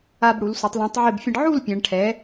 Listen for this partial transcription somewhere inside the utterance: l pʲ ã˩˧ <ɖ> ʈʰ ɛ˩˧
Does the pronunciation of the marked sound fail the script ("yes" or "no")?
no